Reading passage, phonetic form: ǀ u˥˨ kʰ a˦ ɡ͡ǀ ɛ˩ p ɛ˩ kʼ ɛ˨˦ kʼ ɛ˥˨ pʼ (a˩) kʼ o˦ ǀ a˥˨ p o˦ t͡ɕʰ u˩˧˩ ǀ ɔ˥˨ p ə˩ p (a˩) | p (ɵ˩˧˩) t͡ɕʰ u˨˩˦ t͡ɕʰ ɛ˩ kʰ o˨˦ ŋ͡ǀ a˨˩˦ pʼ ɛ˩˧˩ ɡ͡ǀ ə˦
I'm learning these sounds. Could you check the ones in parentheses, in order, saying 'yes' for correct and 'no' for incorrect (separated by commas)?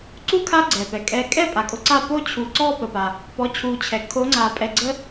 yes, yes, no